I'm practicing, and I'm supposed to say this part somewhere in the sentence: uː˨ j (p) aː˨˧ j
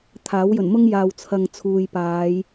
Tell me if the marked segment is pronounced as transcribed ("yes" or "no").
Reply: yes